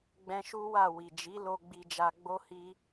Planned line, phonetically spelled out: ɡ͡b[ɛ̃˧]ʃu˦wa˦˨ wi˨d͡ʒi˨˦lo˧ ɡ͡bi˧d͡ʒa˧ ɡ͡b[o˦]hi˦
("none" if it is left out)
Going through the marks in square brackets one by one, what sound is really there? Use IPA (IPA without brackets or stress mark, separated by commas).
ɛ̃˧, o˦